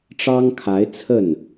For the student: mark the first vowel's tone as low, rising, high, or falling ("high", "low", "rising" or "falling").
high